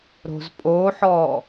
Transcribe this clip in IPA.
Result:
ɾ o̤ z pʼ o ħ ɔ

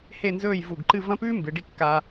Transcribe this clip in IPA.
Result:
h e˥˧ n z ɵː˥˧ j v u˧˩ ɡ ǃ ɨ˥˧ v ɐ̃˥ p ʉː˥ m b ɨ˩˧ ɖ i˧ kː a˧

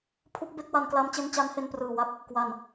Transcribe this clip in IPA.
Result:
pʰ u˦˥ k̚ b e˥˩ k̚ w a˧ n k l a˦˥ m t͡ɕ e˦˥ n t͡ɕ a˦˥ n h e˧ n p r ɯː˨˩ w a˦˥ k̚ | k w a˨˩ n

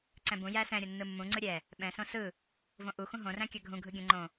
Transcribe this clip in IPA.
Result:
ǀ ɛ̃ b ũ j æ s ɛ̃ ɾʲ o nː ɯ mː ũ ŋ͡ǀ ɯ ɾʲ ɛ | ɓ ɛ̃ s õ s ɯ | v õ ʔ u x ũ ɦ õ r æ̃ kʲ a ɡʱ ũ ɡʱ ɯ ɡʲ ə̃ ŋ͡ǃ õ

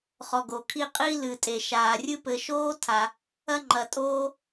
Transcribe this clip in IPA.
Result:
χ ɔ˨ ɡ o˩ kʰ i˦ qʼ i˦ l ɨ˩ tʼ e˩ ʃ aː˩ rʲ ɨ˦ p ɘ˨ ʃ oː˥ tʰ a˨ | ɐ˥ ŋ͡ǃ ɐ˨ tʼ oː˥

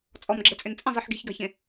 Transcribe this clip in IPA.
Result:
t͡sʼ ɔ m ɡ͡ǁ ɛ t͡sʼ ʏ n t͡sʼ ə̃ zˤ i ħ ɡ i̤ ç ɡ a̤ ç ẽ

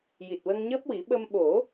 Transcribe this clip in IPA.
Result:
j i˨˩ t̚ w ə˧ ŋ ɲ əː˦˥ p̚ w i˨˩˦ ɓ ə˧ m ɓ o˨˩˦

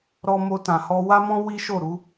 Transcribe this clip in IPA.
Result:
ɾ ɔ˧ m o˧ t ã˨ h ɔ˧ w a˧ m ɔ̃˧ w i˦ ʃ o˦˨ ɾ u˨˦

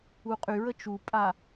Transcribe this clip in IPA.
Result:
u qʼ y ɹ ə t͡ʃ u pʼ a

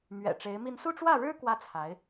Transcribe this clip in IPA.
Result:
m ɥ ɛ̰˨˩ ʈ͡ʂ e˧˥ ɪ̯ m i˥˧ n s u˥˧ ʈ͡ʂ w ä˥˩ ɻ ɻ̩˥ k w ä˥ t͡sʰ a˧˥ ɪ̯

